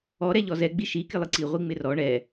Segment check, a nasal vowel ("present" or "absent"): absent